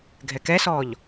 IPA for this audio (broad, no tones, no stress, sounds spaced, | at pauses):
ɡʱ ɛ k ɛ s ɔː ʎ